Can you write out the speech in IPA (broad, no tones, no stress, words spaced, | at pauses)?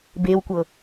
bewkʷɤ